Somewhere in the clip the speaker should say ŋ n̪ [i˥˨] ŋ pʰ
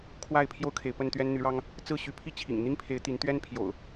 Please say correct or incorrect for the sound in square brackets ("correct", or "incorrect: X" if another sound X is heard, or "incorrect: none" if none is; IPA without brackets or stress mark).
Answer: incorrect: i˦